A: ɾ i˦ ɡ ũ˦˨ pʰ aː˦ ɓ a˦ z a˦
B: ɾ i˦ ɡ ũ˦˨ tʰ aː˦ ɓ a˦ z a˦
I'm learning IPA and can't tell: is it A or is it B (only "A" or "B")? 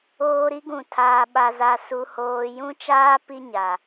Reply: B